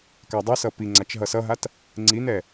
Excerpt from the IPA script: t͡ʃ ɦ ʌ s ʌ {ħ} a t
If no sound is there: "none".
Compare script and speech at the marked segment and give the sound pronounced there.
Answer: ɦ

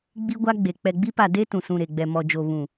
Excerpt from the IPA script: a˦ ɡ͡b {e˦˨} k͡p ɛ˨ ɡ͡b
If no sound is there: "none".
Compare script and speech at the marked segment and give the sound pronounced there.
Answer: e˨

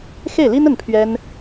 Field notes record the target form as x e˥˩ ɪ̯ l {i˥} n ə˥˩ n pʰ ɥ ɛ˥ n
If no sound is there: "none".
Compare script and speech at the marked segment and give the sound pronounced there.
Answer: i˥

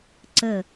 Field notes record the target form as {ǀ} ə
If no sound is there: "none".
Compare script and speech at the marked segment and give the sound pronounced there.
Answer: ǀ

